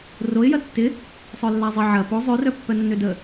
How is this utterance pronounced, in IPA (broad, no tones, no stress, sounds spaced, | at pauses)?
r o ɪ̯ j ɐ tː ɪ | sˤ œ lː a zˤ ɪ ʕ ɐ p o zˤ ø r œ pː œ nː ø d ə